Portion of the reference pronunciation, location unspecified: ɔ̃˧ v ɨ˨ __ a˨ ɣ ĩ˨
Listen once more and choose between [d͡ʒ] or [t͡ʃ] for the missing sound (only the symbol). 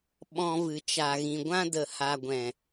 t͡ʃ